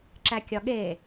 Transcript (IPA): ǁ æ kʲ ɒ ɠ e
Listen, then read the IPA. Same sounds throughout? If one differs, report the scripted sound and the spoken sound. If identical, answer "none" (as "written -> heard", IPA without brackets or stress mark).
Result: none